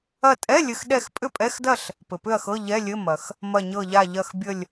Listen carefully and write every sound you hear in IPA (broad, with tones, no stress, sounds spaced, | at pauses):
ɐ˧˩ tʼ ɛ˧˥˧ lʲ ɘ˧˩ x ɗ ɛ˥˨ x pʼ ʏ˥˨ pʼ ɛ˧˥˧ x d ɐ˥˨ ɬ | p ɘ˩ p ʏ˥˨ ɐ̯ x ɤ˧˥˧ ʎ ɛ˧˥˧ lʲ ɘ˧˥˧ m ɐ˩ x | m ɐ˧˩ ɲ ɤ˧˩ ʎ a˧˩ ʎ ɐ˧˩ x bʲ ə˧˩ lʲ